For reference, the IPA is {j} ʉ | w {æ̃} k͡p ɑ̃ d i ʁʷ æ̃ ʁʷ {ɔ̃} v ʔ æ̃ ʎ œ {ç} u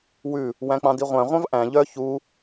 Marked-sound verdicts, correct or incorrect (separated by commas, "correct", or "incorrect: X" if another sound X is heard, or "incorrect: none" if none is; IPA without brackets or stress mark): incorrect: w, correct, incorrect: ɑ̃, correct